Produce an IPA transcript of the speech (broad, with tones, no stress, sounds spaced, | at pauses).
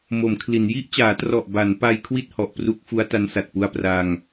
m o˩˦ m kʰ l i˩˦ n j i˦˥ ʔ t͡ɕ aː˩˦ t r ɔ˨˩ ʔ b a˩˦ n p a˧ j kʰ w i˥˩ t̚ h ɔ˨˩ ʔ p r u˦˥ k̚ f u˦˥ a̯ t a˦˥ n s a˨˩ t̚ p u˧ a̯ p r a˧ ŋ